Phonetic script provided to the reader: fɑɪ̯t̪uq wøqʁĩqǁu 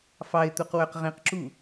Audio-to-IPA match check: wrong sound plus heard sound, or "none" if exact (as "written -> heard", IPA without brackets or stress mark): none